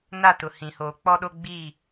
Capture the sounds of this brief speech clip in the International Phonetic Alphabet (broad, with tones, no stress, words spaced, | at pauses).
na˦˨tʊ˨hĩ˨ hoː˨k͡pɔ˦ɗo˦ ɡ͡biː˦˨